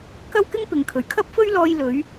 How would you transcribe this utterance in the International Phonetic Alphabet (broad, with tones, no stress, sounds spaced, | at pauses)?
k ɐ˥ w k ɪ˥ ŋ p ɪ˨ ŋ kʰ ɵ˨˩ ɥ kʰ ɐ˥ p̚ f ɵ˥ ɥ l ɔː˧ j l ɵ˨˧ ɥ